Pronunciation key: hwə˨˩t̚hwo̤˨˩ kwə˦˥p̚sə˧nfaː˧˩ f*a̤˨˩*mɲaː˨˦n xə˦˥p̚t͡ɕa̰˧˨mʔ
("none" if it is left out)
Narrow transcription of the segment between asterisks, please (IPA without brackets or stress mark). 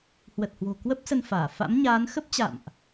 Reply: a̰˧˥